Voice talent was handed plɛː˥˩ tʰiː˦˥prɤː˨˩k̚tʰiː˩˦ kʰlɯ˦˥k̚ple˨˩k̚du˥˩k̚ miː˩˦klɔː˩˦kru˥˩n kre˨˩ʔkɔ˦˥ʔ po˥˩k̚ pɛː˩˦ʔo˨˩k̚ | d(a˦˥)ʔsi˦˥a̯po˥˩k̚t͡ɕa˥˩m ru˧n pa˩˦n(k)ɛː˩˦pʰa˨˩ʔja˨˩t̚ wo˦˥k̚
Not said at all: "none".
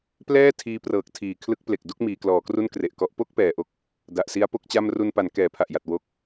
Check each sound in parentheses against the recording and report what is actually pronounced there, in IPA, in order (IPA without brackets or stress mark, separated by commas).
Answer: a˨˩, k